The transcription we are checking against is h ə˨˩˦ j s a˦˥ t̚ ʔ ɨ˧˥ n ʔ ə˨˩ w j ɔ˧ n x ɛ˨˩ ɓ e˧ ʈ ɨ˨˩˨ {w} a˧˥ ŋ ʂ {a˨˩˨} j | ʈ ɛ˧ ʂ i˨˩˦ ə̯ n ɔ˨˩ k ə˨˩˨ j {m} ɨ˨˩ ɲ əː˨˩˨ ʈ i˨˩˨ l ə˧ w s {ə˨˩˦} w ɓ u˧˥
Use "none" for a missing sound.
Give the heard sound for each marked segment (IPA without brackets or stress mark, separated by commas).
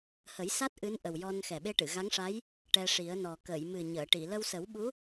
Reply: ɣ, a˧˥, m, ə˨˩˦